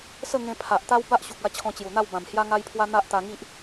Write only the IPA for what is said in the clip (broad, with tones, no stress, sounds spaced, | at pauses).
s ə˥˧ ŋ ẽ˧ pʰ a˨ ʔ t̪ a˦ w b a˦ ʔ ɕ u˨ k̚ a˧ t͡ɕʰ ɔ̃˧ t͡ɕ j u˨˩ n̪ a˥˧ w b ã˨˩ m h j a˦ ŋ a˦ j pʰ w a˦ n̪ a˦ ʔ t̪ a˧ ŋ i˦ ʔ